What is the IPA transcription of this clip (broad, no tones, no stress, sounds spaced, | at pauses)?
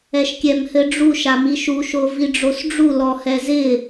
ɛ ʃ kʲ ɛ m h ɘ ɖ͡ʐ u ʃ a m i ʃ u ʃ o v i ɖ͡ʐ o s ɖ͡ʐ u l ɔ h ɛ z ɪ